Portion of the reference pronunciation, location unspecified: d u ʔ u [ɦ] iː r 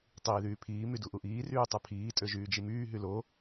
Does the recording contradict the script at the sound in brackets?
yes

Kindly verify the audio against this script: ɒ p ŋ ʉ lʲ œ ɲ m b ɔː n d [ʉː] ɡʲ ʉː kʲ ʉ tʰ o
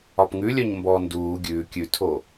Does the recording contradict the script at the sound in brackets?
yes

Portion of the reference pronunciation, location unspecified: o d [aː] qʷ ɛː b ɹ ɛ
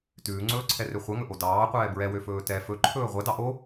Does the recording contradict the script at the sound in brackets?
yes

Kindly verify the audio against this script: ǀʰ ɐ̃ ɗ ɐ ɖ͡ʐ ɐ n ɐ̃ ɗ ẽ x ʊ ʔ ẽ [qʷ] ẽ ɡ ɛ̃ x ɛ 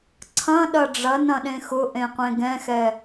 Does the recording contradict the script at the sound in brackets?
no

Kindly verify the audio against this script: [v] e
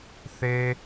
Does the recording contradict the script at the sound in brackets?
yes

